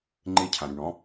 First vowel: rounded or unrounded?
unrounded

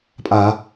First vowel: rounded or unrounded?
unrounded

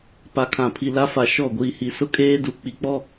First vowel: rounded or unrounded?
unrounded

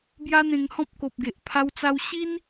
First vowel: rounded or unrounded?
unrounded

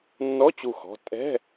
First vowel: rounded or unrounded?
rounded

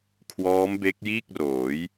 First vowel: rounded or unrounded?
rounded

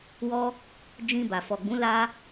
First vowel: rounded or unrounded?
rounded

